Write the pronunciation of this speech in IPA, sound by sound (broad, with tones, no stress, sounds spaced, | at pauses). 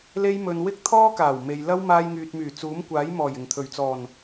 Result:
l e˥ j m ɵ˧ n w ɪ˥ k̚ t̪ʰ ɔː˥ k aː˨˩ w m e˨ j l ɐ˥ w m aː˧ j ŋ yː˨ t̚ m yː˨˩ t͡s uː˨˥ m kʷ aː˨˥ j m ɔː˨˩ j ɪ˨˩ ŋ t̪ʰ ɵ˨˩ ɥ t͡s ɔː˨˩ n